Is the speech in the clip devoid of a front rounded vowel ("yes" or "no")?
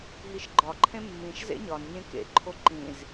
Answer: yes